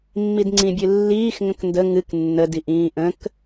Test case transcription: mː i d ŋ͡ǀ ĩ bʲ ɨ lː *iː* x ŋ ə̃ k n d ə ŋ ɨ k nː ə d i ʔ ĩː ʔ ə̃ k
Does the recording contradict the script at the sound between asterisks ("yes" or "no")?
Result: no